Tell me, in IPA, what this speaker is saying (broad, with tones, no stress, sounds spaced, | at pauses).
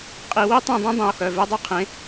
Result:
qʼ i˧˩˧ w i˥ tˤ ĩ˦˨ dˤ ẽ˥ dˤ ĩ˩˧˩ o̯ x œ˩˧˩ v e˥ dˤ œ˥ qʰ ẽ˩˥